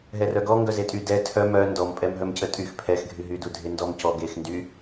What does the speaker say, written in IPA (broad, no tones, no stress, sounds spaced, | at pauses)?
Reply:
ɦ ɛ r œ ɡ ɔ ŋ ɡ œ z e tʼ y d ɛ tʰ œ m œ n d ɔ m pʼ ɛ m ɦ œ m c ə tʼ y x pʰ ɛ x ɡʱ y ɦ y d u dʱ e n d ɔ m c ɔ ɡ e x n d y